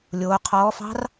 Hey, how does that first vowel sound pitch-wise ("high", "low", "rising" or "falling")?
rising